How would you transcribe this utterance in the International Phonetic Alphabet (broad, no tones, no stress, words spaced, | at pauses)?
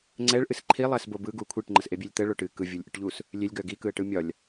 ŋ͡ǀɛɭʔɨs ǃʰilˠɛsbo bɯɡu kʷʰiʈŋ͡ǃəsʔebʲelʲ t̪əɭo ʈɨ kɯvʲɯlʲʔɯʈʎus | lʲelʲɡœ ɡikɯə̯ʈɯ mʲɒlʲ